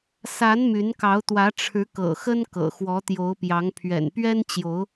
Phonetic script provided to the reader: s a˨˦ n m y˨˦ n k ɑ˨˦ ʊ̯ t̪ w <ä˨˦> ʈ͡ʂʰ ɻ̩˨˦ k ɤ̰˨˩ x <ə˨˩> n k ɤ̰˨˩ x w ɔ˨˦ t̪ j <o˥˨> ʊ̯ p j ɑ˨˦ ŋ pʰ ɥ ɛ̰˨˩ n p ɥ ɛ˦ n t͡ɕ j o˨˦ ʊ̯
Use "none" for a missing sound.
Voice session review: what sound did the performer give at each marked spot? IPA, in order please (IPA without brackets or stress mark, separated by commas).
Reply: ä˨˦, ə˦, o˨˦